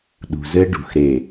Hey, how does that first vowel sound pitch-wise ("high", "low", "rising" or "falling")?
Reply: low